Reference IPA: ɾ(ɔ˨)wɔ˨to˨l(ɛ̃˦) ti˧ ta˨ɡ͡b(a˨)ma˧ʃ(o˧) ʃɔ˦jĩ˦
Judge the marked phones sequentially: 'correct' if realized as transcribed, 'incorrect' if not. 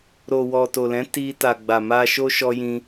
incorrect: o˨, incorrect: ɛ̃˨˦, correct, incorrect: o˦

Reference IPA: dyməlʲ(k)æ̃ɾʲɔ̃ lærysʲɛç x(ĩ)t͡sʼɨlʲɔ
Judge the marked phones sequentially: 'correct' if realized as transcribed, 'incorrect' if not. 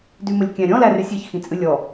incorrect: kʲ, correct

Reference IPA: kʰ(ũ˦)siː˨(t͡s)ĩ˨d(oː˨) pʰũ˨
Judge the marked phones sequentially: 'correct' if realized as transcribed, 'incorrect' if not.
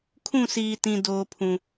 incorrect: ũ˦˨, incorrect: t, correct

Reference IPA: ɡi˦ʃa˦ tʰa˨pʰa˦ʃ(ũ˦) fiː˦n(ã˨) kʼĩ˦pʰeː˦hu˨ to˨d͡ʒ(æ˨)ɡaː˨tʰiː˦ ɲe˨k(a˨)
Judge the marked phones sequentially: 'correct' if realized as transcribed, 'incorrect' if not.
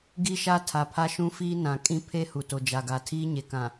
correct, correct, incorrect: a˨, incorrect: ã˨

